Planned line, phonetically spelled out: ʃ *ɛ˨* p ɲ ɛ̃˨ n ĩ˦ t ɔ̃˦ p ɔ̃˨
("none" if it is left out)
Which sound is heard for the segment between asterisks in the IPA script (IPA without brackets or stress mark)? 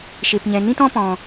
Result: e˨